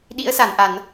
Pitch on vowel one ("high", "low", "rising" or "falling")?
rising